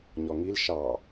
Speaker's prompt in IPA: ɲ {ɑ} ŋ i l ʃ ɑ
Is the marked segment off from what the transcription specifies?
yes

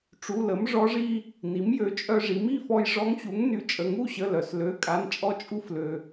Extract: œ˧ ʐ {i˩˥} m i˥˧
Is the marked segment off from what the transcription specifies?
no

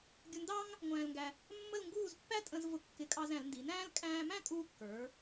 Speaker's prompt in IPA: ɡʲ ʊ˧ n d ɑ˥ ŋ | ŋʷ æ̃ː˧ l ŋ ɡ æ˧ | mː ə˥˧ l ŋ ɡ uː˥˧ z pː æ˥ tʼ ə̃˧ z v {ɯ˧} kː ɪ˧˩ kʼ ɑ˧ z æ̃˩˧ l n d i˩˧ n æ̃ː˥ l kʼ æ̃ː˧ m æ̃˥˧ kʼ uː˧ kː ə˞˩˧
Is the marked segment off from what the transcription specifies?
yes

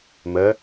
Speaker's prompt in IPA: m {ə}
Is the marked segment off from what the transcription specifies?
no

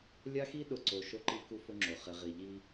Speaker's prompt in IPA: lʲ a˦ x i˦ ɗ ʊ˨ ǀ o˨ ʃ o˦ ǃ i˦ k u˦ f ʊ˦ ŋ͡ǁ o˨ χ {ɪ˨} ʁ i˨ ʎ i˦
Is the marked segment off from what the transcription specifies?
no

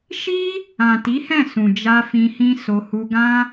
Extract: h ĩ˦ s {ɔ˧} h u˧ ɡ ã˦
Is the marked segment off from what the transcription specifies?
yes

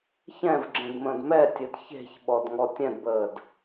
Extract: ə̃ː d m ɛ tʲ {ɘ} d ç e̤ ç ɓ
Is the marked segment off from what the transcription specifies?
no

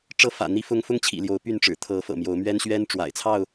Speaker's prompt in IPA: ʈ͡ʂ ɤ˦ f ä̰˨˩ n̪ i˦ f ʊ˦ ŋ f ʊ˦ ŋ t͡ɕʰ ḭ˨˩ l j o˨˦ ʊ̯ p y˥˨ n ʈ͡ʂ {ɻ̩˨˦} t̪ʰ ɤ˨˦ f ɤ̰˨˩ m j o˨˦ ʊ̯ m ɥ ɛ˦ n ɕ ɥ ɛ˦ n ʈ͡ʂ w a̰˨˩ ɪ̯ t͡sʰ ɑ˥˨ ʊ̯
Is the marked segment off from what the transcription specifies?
yes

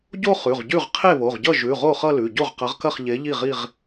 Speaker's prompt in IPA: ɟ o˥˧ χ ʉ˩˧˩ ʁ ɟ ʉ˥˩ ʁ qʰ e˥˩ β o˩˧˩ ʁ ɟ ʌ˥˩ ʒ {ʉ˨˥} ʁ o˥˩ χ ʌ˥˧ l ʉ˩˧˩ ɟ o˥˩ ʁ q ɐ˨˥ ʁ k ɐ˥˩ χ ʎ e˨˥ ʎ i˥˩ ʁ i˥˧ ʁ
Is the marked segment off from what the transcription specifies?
yes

